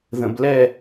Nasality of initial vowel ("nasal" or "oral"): nasal